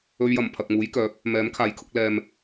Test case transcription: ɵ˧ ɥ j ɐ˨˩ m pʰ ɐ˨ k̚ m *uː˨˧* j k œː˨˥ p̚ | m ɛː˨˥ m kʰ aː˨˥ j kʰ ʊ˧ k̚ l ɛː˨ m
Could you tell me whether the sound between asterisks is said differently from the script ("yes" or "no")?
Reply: yes